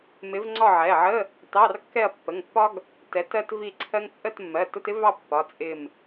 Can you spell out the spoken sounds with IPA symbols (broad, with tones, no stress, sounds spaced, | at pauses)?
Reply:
m ɪ˨˥ v ŋ͡ǀ ɒ˥˨ ʕ ɛ˩˧˩ ʕ ə˧˥˧ | t ɑ˧˥˧ r kː ɛ˥˨ ɐ̯ pː ə˩˧˩ ŋ pː ɒ˥ ɡ | t ɛ˨˥ t ɜ˥ t v i˥˨ ǀʰ ɜ˥ ŋ t͡sʼ ə˥˨ t mː ɜ˩˧˩ t ʊ˧˥˧ t ɪ˥ v ɑ˥˨ pː ɒ˩˧˩ t͡sʼ ɪ˧˩ m